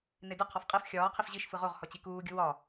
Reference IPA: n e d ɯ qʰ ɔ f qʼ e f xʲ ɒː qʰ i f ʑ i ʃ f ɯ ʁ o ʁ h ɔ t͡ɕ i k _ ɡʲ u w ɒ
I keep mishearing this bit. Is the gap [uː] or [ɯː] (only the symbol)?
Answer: uː